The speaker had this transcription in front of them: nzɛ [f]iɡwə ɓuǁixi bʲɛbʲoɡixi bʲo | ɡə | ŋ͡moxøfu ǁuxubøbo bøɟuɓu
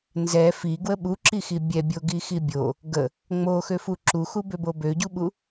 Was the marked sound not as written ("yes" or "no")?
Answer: no